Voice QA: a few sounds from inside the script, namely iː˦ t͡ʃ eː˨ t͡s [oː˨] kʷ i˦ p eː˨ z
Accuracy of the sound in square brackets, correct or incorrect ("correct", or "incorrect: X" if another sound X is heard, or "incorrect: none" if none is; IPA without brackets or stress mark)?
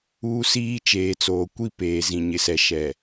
correct